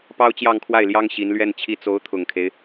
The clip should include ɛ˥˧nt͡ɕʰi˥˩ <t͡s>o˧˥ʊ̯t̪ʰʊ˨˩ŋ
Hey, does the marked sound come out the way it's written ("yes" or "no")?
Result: yes